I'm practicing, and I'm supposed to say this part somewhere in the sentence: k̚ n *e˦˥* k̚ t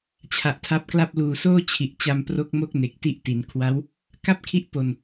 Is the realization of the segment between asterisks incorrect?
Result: yes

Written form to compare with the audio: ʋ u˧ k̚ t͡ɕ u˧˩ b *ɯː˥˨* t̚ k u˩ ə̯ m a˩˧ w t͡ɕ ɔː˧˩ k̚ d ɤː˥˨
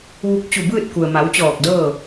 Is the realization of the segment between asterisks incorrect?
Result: no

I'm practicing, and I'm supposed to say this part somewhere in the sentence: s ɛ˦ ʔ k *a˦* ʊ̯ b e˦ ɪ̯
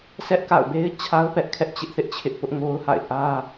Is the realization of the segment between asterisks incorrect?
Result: yes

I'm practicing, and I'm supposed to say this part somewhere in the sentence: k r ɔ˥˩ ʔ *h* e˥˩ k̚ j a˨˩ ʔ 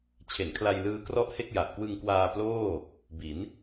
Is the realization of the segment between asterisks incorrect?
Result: no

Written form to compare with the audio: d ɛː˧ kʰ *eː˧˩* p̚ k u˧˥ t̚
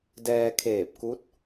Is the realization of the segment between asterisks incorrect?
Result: no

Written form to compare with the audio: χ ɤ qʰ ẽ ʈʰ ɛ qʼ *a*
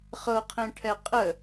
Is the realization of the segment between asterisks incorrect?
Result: yes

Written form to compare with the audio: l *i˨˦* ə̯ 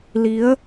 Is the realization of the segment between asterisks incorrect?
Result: no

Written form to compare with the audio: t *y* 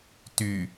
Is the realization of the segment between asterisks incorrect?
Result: no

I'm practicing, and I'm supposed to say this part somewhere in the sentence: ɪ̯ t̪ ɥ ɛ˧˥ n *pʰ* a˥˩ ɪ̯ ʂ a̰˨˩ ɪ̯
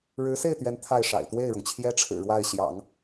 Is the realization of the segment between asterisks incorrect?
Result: yes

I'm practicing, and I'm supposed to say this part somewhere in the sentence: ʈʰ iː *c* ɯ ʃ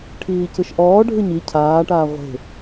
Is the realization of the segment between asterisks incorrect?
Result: no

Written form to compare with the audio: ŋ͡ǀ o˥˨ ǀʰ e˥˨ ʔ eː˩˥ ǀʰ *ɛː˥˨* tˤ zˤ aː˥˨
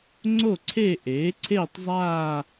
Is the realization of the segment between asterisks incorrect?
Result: yes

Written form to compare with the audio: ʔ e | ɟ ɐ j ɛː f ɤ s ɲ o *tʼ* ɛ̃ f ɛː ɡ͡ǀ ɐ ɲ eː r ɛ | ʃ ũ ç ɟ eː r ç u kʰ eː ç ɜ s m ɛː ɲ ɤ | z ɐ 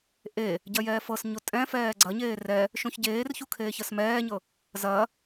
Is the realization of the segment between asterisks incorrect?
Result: no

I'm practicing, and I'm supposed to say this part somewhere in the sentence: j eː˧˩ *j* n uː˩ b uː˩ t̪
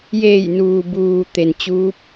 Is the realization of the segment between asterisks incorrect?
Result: no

